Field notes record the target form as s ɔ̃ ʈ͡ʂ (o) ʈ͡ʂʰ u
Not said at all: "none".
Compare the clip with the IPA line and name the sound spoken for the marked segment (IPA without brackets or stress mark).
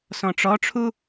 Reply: ɔ